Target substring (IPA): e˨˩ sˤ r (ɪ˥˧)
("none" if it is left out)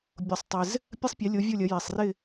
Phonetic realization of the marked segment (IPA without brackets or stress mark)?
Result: ɪ˥˧